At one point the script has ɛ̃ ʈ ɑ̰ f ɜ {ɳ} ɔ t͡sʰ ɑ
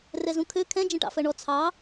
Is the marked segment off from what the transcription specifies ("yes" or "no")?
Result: no